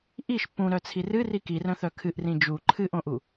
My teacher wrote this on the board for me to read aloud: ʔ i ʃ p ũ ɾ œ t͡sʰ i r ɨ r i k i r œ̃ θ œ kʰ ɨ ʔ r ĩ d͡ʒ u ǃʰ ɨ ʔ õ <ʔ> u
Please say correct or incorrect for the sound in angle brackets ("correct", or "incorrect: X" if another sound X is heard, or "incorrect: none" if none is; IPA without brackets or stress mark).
correct